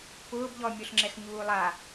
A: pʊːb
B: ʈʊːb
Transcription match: A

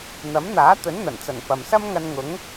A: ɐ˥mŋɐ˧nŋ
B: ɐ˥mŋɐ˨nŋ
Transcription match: A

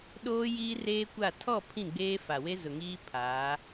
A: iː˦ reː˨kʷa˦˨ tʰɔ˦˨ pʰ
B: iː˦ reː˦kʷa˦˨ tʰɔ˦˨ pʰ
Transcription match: B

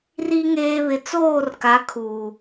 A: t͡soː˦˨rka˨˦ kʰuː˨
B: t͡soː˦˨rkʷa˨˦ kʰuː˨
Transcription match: A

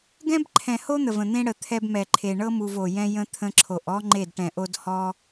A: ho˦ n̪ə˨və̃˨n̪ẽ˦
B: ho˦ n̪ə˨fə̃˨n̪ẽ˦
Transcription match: A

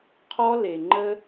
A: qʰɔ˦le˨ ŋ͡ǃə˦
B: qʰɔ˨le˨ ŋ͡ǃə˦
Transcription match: A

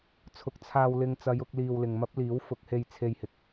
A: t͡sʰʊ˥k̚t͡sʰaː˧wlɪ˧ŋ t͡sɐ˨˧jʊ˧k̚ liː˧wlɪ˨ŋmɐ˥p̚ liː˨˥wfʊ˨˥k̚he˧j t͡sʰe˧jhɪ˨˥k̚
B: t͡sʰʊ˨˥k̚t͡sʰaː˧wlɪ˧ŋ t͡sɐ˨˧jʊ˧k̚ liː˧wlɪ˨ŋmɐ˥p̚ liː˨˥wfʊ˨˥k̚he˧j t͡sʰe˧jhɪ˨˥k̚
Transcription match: B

